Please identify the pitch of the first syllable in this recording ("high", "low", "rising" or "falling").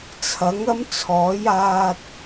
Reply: rising